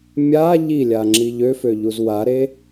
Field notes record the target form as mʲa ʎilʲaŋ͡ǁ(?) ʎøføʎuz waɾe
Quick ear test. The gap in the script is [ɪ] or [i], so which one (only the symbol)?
i